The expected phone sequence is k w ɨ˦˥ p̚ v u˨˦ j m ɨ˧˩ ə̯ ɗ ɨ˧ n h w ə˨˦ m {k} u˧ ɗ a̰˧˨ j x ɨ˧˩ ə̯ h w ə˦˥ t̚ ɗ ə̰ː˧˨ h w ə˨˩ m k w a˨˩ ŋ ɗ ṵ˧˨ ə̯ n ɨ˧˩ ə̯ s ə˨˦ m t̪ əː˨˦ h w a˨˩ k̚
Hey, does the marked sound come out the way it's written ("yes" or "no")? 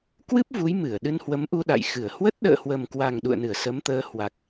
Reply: no